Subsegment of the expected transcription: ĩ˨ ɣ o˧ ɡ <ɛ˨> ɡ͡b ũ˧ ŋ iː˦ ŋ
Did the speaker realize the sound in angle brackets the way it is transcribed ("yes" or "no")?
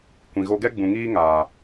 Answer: no